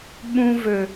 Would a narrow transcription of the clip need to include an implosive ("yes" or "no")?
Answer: yes